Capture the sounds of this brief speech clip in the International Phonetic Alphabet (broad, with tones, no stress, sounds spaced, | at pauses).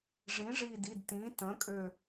ʐ ĩ˩˥ ʐ i˧˩ d i˩˧˩ d t ĩ˩˥ t ə̃˩˥ kʼ ø˧˩